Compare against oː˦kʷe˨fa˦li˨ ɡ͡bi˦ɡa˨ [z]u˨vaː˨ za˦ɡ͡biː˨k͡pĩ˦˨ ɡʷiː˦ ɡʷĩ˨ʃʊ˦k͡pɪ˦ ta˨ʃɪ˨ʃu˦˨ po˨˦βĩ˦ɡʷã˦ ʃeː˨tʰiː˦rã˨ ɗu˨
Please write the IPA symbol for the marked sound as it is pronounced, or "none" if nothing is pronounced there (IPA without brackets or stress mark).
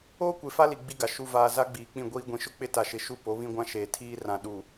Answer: ʃ